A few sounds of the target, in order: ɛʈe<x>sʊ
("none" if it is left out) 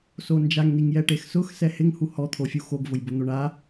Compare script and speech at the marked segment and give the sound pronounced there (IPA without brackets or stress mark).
x